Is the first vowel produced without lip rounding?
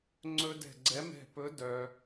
no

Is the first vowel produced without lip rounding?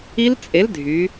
yes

